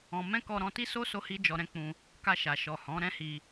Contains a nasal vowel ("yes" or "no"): yes